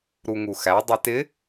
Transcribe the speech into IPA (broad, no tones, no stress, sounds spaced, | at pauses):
ɾ u ŋ u x æ dˤ i t ɪ